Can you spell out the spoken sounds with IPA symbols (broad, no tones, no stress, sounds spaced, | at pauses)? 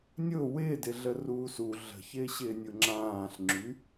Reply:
nʲ ʊ w ɪː d ɪ ɮ ə r uː s u ɮ ə̤ ç ɪː ɕ ɪː nʲ ʊ ŋ͡ǁ ãː ɬ ŋ͡ǁ y